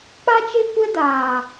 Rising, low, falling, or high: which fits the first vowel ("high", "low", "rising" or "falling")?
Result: high